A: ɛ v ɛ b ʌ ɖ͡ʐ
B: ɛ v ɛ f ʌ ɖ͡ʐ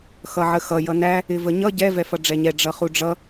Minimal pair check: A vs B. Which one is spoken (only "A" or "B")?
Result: B